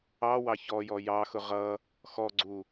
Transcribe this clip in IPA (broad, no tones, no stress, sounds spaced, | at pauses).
ɑ w ɑ ç ɔ j ɔ j ɑ x ʊ ʁ ʌ | x ɔ ɡ͡ǀ u